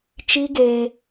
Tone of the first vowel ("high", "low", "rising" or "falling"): high